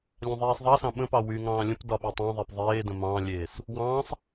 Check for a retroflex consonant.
absent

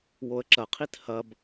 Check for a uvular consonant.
present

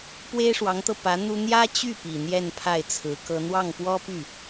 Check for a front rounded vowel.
present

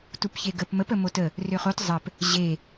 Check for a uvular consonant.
present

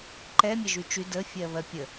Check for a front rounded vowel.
present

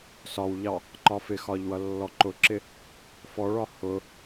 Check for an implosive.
absent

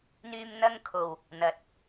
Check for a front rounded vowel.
present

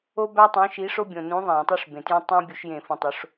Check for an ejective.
absent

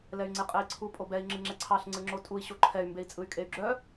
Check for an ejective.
present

